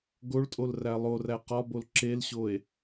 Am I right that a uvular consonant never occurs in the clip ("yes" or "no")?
no